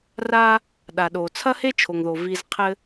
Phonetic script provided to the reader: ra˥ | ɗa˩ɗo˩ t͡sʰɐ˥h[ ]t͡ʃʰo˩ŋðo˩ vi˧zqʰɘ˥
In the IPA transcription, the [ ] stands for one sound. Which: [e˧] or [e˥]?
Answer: e˥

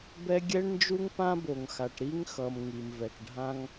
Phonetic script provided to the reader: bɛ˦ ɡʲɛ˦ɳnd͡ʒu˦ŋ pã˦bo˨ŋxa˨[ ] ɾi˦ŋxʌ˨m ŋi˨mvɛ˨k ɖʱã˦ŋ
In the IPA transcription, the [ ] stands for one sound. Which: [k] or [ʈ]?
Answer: ʈ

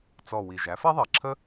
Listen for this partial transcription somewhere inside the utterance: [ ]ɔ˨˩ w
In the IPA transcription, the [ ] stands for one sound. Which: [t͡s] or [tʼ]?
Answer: t͡s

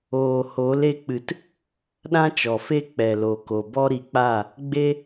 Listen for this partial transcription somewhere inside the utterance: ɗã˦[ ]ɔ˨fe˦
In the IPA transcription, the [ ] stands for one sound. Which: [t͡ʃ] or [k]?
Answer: t͡ʃ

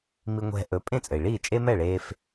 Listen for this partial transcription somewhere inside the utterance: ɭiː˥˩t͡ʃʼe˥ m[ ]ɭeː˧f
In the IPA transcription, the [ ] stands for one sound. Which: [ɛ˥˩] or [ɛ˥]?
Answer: ɛ˥˩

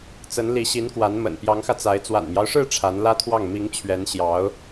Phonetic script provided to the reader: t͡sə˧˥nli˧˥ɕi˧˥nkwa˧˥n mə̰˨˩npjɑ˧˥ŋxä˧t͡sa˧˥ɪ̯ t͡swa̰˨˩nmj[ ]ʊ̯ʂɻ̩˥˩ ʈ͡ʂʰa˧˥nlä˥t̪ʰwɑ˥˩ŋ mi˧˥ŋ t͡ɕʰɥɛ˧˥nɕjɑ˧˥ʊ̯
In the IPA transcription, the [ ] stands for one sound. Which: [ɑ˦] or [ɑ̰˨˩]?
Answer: ɑ˦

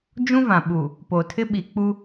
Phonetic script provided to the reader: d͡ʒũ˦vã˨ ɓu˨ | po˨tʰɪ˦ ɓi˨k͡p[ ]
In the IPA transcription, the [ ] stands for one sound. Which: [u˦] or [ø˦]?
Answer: u˦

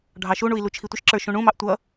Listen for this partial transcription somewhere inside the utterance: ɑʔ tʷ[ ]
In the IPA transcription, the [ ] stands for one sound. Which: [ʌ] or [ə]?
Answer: ʌ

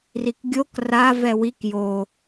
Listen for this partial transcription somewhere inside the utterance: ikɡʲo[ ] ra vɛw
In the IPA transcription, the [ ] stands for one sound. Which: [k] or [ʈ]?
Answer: k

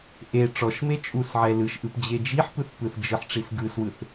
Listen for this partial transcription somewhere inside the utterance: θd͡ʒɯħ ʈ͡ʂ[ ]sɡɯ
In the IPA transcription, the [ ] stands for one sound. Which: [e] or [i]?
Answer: i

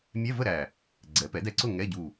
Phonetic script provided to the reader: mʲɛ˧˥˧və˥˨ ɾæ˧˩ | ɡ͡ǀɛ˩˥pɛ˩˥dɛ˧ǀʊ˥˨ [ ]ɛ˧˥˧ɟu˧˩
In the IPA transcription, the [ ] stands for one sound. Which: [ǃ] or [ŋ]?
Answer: ŋ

